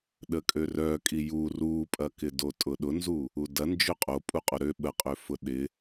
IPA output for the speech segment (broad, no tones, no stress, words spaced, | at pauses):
ɗəkʼørœ kʼiju rupʼɐkɪ dotʼʊɗʊnzu | udɐ nd͡ʒøqʼo pʼuqʼoɾø ɓəqʼøfʊ ɗɪ